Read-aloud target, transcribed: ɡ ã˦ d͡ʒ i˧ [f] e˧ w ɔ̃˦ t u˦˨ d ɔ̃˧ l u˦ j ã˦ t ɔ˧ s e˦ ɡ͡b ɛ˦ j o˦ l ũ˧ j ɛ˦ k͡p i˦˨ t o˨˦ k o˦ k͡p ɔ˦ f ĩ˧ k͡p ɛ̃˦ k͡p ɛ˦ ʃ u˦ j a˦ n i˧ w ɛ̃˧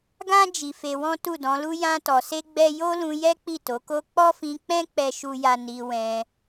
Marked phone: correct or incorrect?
correct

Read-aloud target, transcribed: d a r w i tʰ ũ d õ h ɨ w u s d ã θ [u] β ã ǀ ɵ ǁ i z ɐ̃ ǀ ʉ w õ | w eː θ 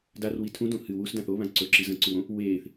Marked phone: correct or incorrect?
incorrect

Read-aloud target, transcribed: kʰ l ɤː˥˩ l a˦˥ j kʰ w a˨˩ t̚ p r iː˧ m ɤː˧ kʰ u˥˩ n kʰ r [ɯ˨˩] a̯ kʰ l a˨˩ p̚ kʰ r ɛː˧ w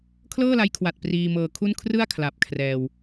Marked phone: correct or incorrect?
incorrect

